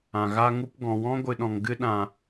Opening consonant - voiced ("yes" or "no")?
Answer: yes